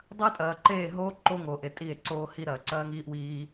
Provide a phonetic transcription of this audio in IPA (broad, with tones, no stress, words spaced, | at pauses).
dˤɐ˦e̯ tʼɐː˨ǃeː˦˨ ɦoː˦ ǃo˦ŋo˨ʔe˨ tʼi˦˨e̯ǀoː˦ hi˦ɾɐ˨ ǀɐː˦ŋiː˦ʔwiː˦